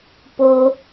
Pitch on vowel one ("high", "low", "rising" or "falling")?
high